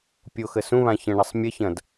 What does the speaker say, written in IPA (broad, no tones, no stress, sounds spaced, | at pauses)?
pʲ o x ə s ũ β ã ç ə̃ ɳ ɐ sˤ mʲ ə ç ɐ̃ d